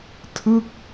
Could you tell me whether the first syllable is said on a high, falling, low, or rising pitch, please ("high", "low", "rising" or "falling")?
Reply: falling